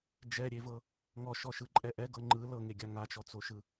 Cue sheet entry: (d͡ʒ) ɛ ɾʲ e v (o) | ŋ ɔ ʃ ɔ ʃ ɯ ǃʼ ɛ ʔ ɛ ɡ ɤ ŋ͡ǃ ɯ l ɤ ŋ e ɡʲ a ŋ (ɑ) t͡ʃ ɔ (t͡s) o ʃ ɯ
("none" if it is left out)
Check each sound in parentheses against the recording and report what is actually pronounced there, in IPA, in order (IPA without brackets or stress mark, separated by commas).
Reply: d͡ʒ, ɤ, a, t͡s